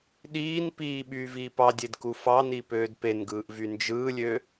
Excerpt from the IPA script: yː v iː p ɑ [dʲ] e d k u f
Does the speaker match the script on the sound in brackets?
yes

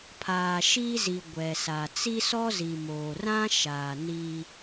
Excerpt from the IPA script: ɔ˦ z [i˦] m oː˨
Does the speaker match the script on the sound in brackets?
no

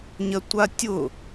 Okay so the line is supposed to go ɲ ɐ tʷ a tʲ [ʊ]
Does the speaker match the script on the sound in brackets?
yes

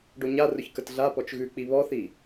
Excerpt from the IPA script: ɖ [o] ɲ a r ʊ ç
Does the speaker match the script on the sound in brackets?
yes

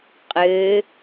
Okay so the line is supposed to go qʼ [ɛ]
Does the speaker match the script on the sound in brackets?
no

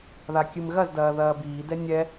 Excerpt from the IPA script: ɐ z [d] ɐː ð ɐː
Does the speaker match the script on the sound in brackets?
yes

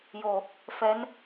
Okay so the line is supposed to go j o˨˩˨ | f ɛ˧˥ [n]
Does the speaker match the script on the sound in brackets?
yes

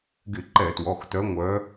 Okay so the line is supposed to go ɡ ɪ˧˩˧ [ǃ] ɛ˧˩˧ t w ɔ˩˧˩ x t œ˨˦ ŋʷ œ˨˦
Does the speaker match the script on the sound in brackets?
yes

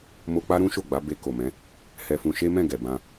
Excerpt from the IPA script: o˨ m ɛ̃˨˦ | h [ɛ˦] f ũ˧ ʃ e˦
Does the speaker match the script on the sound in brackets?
no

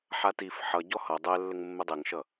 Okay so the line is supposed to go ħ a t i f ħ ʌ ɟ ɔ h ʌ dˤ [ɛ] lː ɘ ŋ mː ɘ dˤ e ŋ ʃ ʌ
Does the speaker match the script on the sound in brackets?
yes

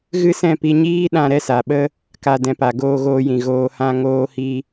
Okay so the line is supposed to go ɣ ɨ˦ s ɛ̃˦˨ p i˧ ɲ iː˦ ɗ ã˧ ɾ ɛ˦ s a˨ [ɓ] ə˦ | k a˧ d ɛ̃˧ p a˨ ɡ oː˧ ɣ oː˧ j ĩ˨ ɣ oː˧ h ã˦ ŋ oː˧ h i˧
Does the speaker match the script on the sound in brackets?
yes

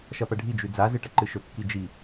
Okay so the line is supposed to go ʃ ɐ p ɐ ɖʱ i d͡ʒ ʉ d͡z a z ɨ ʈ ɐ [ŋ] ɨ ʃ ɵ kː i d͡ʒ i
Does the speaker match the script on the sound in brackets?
no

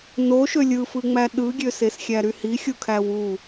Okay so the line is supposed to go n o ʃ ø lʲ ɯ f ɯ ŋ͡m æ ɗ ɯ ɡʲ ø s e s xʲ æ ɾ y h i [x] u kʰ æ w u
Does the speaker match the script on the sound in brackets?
no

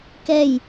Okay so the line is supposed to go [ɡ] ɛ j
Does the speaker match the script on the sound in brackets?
no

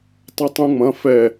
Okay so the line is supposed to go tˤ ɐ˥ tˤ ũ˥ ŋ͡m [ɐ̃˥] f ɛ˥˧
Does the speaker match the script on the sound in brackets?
no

